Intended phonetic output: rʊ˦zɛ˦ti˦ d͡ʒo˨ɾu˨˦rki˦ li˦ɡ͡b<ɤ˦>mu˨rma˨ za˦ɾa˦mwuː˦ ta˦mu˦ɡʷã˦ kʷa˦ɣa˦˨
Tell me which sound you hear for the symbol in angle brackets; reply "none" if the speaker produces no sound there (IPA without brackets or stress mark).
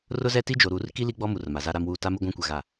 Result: ɔ˦